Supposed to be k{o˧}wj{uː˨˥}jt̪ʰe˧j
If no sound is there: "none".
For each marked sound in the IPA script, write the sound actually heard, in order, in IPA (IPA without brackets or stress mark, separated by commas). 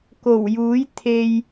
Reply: o˨˩, uː˨˥